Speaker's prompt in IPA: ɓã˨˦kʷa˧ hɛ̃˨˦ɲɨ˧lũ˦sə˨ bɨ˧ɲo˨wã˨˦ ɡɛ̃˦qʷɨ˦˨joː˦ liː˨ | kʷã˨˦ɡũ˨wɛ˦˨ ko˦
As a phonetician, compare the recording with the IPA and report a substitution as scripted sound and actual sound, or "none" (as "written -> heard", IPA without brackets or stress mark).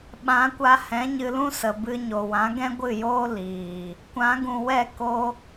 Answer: qʷ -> ɡʷ